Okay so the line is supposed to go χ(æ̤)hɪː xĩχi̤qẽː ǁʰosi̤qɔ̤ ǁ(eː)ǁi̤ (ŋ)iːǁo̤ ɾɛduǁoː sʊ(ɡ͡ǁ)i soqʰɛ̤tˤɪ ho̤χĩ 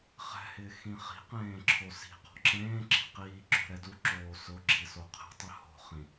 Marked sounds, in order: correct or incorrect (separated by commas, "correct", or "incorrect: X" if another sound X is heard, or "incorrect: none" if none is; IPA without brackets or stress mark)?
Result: incorrect: ɛ̤, incorrect: ẽː, incorrect: q, correct